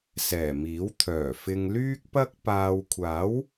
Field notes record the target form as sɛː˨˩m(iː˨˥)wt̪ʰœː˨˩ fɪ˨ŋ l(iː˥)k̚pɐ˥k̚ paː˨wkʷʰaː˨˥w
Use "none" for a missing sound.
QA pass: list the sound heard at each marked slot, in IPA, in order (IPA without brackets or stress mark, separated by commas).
iː˨˥, yː˥